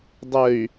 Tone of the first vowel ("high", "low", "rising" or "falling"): low